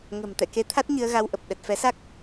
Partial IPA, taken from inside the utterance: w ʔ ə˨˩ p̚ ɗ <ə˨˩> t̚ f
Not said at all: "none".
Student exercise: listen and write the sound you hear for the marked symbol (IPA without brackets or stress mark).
ə˨˩